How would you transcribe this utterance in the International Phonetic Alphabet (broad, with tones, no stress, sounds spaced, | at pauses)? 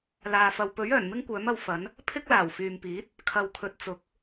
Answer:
l aː˨ f ɐ˨ w p ɵ˨˥ ɥ œː˨˩ n m ɪ˥ ŋ kʷ œː˨˥ m ɐ˨˧ w f ɐ˨˥ n | pʰ ɪ˥ k̚ l aː˨˩ w f yː˨ m p iː˨˥ t̚ | kʰ ɐ˧ w kʰ ɵ˧ t̚ t͡s ʊ˨˥ k̚